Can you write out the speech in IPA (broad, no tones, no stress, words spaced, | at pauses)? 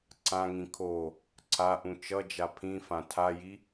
ǀãŋĩ kʰo | ǀaʔũ t͡ʃʌd͡ʒa pʰĩfã tʰaji